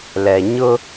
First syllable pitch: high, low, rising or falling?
low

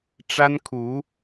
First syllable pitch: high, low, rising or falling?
high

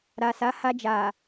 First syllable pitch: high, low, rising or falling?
low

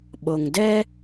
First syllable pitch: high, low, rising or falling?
low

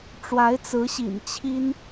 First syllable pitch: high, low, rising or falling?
rising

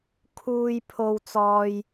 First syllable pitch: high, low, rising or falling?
high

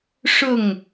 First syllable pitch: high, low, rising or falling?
falling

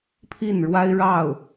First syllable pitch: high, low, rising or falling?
falling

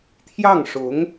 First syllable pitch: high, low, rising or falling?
falling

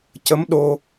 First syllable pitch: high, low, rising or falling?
rising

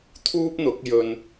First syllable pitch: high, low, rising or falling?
high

